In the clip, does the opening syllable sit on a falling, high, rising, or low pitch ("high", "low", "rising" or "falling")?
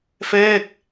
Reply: falling